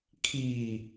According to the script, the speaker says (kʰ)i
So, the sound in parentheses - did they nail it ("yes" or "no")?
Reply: yes